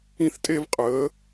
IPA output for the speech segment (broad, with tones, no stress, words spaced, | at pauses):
ĩ˦θtʼe˦vqʼəː˨˦